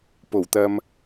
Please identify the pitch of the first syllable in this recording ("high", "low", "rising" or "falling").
low